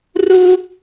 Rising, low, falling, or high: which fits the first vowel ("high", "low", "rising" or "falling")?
high